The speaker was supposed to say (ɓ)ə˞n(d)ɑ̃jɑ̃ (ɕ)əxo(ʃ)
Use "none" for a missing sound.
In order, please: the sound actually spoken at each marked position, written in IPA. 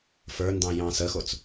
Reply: f, d, s, t͡s

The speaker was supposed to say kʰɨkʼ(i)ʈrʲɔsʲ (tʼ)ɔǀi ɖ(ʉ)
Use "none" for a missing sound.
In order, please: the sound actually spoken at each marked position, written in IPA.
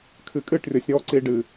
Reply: ɨ, ɾ, ɨ

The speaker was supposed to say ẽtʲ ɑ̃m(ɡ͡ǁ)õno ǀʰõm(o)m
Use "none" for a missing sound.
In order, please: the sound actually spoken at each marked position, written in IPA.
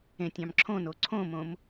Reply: ǁʰ, õ

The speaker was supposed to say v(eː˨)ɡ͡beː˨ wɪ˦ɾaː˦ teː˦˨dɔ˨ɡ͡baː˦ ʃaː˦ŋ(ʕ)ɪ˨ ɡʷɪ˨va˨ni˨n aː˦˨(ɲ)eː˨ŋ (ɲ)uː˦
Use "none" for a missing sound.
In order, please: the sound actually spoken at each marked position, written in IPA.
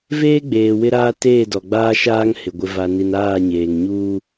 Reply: eː˦, h, ɲ, ɲ

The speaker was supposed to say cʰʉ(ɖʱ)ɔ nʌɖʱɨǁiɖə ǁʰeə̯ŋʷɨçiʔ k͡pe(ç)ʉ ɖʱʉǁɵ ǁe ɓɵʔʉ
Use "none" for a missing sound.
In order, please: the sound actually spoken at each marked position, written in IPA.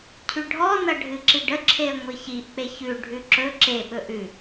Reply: ɖʱ, ç

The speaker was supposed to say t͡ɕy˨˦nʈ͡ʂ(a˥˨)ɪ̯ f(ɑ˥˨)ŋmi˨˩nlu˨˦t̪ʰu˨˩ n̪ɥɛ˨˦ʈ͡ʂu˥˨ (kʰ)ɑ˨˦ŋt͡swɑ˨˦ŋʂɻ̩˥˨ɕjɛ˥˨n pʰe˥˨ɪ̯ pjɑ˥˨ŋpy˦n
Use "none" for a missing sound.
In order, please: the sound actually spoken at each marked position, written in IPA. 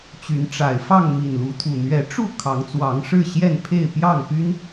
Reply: a˨˩, ɑ˥˨, kʰ

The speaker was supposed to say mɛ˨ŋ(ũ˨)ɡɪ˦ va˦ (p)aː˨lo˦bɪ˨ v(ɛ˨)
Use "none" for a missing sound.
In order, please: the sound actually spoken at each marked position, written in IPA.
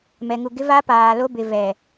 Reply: u˨, p, ɛ˨

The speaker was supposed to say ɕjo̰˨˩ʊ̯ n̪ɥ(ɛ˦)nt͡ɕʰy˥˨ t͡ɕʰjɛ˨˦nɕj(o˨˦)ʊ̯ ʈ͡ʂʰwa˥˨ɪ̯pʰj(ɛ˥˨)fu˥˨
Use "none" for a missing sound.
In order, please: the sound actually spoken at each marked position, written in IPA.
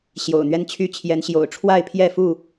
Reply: ɛ˦, o̰˨˩, ɛ˥˨

